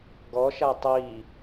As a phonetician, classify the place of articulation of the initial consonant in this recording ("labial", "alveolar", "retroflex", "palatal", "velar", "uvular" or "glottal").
velar